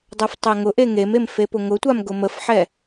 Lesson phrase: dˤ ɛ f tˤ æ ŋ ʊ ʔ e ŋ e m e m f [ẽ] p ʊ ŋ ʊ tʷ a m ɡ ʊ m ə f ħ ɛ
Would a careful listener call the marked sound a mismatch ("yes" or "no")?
yes